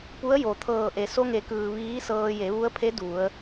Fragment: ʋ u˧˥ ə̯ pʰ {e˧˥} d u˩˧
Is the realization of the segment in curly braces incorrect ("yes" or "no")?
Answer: no